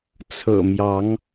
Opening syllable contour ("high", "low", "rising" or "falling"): low